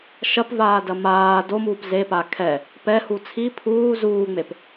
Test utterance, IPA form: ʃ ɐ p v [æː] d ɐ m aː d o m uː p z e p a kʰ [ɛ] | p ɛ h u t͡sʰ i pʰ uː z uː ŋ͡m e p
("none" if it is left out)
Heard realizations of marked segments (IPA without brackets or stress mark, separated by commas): aː, ɛ